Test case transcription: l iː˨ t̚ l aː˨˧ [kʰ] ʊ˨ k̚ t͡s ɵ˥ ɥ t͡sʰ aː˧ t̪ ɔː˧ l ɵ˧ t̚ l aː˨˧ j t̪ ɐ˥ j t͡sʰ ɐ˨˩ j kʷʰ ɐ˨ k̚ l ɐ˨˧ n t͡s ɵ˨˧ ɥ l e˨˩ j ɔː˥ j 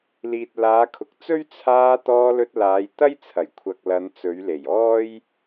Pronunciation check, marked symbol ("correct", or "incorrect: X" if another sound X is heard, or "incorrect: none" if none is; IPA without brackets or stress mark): correct